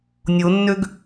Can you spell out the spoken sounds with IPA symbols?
nʲ o nː ø ɡ

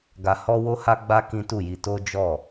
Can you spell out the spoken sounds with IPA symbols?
ɡ a˨ h ɔ˧ w o˦ h a˦ ɡ͡b a˦ k ĩ˦ t u˦˨ j i˧ t o˦ d͡ʒ ɔ˦˨

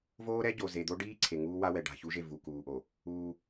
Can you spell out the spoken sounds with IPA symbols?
v oː˦ ɾ ɛ˦ ɟ o˨ z e˨ d̪ o˦ ɖ iː˦ ǀʰ e˨ ŋ uː˦ w a˦ w ɛ˨ ɖ a̤˨ ç u˦ ʒ e˦˨ v u˨ k uː˨ ʔ o˨ | uː˦

